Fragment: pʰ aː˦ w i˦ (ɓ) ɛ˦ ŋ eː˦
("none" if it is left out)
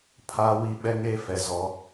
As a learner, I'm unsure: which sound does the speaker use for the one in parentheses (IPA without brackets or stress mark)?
ɓ